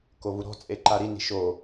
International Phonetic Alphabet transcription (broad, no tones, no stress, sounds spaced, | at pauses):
k o v u ɾ ɔ̤ t͡sʼ e ǃ a ɾ i n i̤ ʃ o